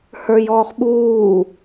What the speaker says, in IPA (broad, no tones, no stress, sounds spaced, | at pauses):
h ə˞ j ɔː χ ɓ uː